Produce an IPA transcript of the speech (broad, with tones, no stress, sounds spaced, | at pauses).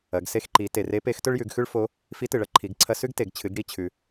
ɐ˩˧ ɡ s e˧ x ǃ i˩˧ t e˩ r e˧˥ p e˧˥ x t ɵ˥ ɭ j ʉ˩˧ ɡ x ʉ˥ ɭ f o˧˥ | f i˧˥ t ɨ˩ ɭ ɐ˧˥ ǃʰ i˩˧ ɡ ǀʰ ɐ˧ s ʉ˥ ɡ t e˩ ɡ t͡ɕʰ ɨ˩˧ ɡ ɽ i˧ t͡ɕʰ ʉ˩